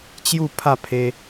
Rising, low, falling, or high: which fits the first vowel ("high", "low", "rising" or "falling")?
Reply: falling